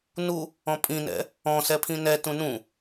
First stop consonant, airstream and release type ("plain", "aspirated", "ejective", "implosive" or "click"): ejective